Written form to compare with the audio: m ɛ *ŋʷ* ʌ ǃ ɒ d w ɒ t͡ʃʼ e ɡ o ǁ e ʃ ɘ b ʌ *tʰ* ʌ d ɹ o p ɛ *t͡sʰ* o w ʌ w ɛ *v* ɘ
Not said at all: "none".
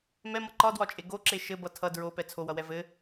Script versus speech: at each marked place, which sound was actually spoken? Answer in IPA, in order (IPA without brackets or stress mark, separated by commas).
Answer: m, tʰ, t͡sʰ, v